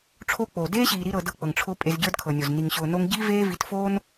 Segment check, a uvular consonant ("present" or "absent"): absent